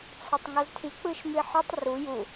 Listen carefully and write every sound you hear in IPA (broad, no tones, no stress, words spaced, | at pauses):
t͡sʰɒtˤŋɒztʰi k͡pɯʃmiħɒtˤ ru ju